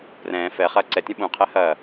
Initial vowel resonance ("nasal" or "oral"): nasal